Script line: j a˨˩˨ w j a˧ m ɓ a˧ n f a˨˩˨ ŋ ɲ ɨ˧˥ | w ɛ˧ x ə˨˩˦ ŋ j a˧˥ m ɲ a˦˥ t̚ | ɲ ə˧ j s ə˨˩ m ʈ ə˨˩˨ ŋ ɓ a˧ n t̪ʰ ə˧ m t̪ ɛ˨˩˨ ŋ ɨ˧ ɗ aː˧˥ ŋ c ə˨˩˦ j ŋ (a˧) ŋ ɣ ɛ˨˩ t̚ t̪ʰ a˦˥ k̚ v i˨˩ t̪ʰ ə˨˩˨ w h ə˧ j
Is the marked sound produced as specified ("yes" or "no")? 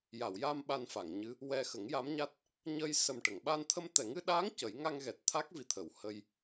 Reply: yes